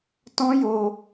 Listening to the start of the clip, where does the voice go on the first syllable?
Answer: high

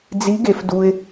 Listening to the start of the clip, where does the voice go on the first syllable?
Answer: rising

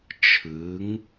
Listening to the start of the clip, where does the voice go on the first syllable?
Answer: rising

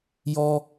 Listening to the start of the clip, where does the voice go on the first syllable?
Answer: high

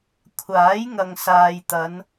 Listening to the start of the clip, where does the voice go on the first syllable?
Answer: rising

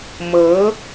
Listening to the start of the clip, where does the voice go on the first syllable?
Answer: rising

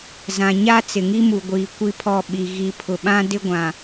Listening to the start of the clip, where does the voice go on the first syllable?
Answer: low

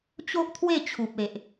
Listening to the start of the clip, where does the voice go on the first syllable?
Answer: high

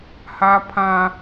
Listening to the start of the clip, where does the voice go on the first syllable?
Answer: high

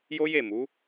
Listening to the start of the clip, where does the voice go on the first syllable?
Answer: high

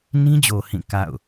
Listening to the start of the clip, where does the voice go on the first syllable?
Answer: high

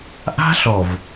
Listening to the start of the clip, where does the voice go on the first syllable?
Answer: high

